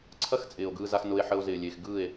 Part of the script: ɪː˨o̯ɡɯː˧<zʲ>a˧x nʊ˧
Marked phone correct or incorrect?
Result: incorrect